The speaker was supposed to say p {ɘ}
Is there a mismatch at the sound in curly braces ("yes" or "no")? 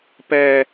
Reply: yes